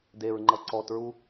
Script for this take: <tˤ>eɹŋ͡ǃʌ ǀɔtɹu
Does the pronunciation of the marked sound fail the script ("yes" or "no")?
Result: yes